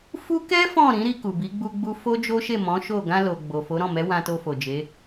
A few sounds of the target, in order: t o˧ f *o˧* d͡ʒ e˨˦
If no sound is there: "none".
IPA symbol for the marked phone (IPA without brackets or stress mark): o˨